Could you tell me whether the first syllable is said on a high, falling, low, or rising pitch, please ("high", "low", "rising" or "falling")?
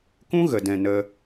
high